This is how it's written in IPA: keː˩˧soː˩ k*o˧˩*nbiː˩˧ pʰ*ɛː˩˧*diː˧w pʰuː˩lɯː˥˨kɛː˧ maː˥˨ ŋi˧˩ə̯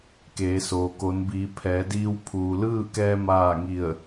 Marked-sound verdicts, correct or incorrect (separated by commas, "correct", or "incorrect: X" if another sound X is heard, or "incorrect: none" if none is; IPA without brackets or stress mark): incorrect: o˩˧, correct